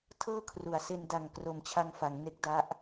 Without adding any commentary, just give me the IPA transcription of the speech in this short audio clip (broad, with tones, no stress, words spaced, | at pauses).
tʰɤː˥˩kʰru˩˦a̯se˧n da˨˩ŋ kro˨˩mt͡ɕʰa˧ŋfa˩˦ŋ ne˦˥k̚da˦˥ʔ